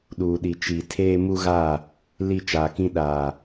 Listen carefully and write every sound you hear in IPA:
ɗ uː˨ ɗ i˨ t͡ʃ i˨ tʰ eː˦ m u˦ ɣ a˦˨ | l i˦˨ t͡ʃ aː˨ k ĩ˦ ɗ aː˨

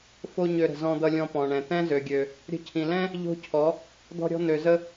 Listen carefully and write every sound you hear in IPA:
f o˦ ɲ ø˧ ɾ ə̤˨ z ɔ̃˧ d̪ ʌ˧ lʲ ɔ̃˧ p ɔ̃˨ ɳ ɛ̃˨ t̪ ɛ̃˦ z ø˨ ɡʲ ø˨ | ɾʲ ə̤˧ cʰ ĩ˨ l ɛ̃˦ | ʎ o̤˦ cʰ ɔ˨˦ | d̪ ɔ̤˧ ɾʲ ɔ̤˧ n̪ ø˨ z ə˧

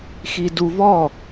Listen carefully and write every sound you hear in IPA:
x i d u v ɔ

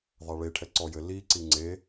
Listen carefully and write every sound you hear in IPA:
ðˤ a ɭ e ʈʰ ɛ ǀ ɔ j ɘ l i ǀ i ŋ͡ǀ e

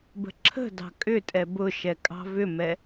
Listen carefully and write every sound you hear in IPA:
b ə̤ ǁʰ ə̤ d ɑ̤ kʼ ʏ tʼ ɛ b ʊ ʃ ɛ kʼ ɑ̤ v ʏ m ɛ

